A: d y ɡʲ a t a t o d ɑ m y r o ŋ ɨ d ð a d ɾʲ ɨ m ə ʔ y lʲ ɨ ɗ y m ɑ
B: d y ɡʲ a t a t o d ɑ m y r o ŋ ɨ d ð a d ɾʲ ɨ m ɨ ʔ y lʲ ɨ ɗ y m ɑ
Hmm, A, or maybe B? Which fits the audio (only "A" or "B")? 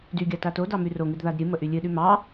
A